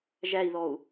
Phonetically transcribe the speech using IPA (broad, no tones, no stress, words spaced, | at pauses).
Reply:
ʒæi̯ðɔu̯